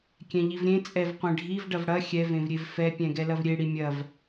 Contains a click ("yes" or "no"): no